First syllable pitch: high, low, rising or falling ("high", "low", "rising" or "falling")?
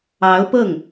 rising